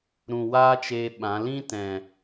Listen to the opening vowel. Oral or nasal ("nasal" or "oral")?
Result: nasal